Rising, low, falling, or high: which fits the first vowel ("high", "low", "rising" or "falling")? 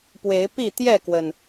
rising